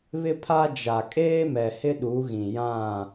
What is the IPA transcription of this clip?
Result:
β ɪ˦ pʰ a˦ d͡ʒ a˨ kʼ eː˦ m ɛ˨ h ɪ˦ ɗ u˨˦ ɣ ĩ˨ j ã˦˨

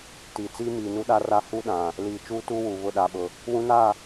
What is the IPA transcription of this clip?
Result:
t iː˨ t͡s iː˦ m iː˨ n u˦ ɗ a˦ r a˦ h u˦ ɗ ã˨ | l iː˨ t͡ʃ uː˦ t uː˦ w uː˨ β ʊ˦˨ ɗ aː˨ ɓ ʊ˨ | w ũ˦ n a˦˨

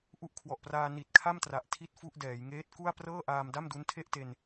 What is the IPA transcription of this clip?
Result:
ʔ u˦˥ ʔ kʰ w ɔ˨˩ ʔ p r aː˧ n i˨˩ t̚ kʰ a˥˩ m t r a˨˩ ʔ tʰ i˥˩ t̚ f u˥˩ ʔ d ɛː˩˦ j ŋ eː˦˥ t̚ k u˥˩ a̯ p r ɤː˥˩ ʔ aː˧ m d a˥˩ m d u˦˥ n tʰ e˥˩ ʔ t e˧ n

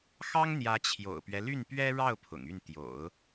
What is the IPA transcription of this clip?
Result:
x ɑ˥ ŋ n̪ j ä˧˥ t͡ɕʰ j o̰˨˩ ʊ̯ p ɥ ɛ˦ l y˥˩ n p ɥ ɛ˥ ɻ ɑ˥˩ ʊ̯ pʰ ʊ̰˨˩ ŋ y˥˩ n t̪ j o̰˨˩˦ ʊ̯

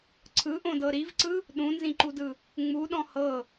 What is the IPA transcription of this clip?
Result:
ǀʰ ɯ ʔ õ d ɤ ɾ i v ǀ ɯ | ɗ ũ n z ĩ ǃ u d ɯ | ŋ͡m u ɗ ɔ̃ h ɤ

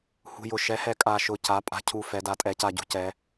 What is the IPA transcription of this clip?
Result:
h ṳ˨˩ j ʊ˨˩ ʃ ɛ˩˧ h ɛ˩˧ kʼ a˨˩ ʃ ʊ˨˩ c a˩˧ pʼ a̤˨˩ cʰ u˨˩ f ɛ˩˧ d a˩˧ tʼ ɛ˩˧ c a˨˩ ɟ ṳ˩˧ c ɛ˩˧

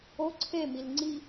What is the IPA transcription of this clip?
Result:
o ǀʰ e m i l ŋ͡ǀ i

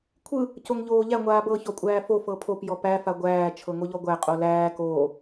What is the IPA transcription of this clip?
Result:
kʷʰ ɯ | c o ŋ ʎ oː ʎ æ ŋʷ aː b ɤ ç ɔ kʷʼ æː f o f ɤ pʰ o p j ɔ p æ f a ɡʷ æː t͡ʃʰ ɤ ŋ o ʎ ɔ ɡʷ æ qʼ o l æː k oː

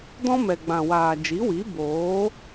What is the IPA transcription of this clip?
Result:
d ɔ̃˦ m ɛ˨ ɡ͡b ã˨ w aː˨ d͡ʒ i˨˦ w i˨˦ b oː˨˦

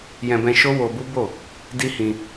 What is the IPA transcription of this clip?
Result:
j ɛ̃˧ b ɛ̃˧ ʃ o˦ w o˧ b u˦ b o˦˨ | d i˦ h ĩ˧

